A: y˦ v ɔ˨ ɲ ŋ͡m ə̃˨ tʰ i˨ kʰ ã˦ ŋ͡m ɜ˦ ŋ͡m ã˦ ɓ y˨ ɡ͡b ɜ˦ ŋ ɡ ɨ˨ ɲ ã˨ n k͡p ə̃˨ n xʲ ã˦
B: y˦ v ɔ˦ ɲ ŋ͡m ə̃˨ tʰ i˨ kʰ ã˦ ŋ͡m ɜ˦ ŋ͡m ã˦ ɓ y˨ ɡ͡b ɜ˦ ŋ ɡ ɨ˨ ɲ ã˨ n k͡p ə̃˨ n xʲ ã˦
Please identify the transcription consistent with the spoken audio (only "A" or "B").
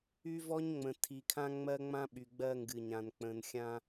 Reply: B